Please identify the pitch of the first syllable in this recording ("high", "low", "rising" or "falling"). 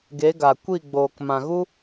rising